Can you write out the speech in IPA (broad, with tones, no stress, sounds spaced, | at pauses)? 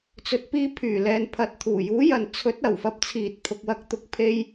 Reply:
t͡s ɵ˨ t̚ p iː˧ pʰ yː˨˩ l ɛː˨ n pʰ ɐ˨˥ t̚ t̪ʰ uː˨˩ j uː˨˥ j ɐ˨ n t͡sʰ ɵ˨˥ t̚ ɐ˨˩ w f ɐ˧ p̚ t͡sʰ iː˨ t̚ pʰ ʊ˨ k̚ w ɐ˧ k̚ t̪ ʊ˨˥ k̚ pʰ e˧ j